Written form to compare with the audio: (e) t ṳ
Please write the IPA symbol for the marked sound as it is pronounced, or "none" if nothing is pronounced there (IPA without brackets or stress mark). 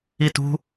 i